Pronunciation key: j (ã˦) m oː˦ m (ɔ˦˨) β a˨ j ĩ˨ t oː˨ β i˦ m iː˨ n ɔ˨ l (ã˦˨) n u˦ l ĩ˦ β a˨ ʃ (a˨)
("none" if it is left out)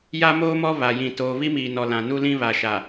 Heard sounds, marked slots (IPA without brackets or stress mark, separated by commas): a˦, ɔ˦, ã˨, a˨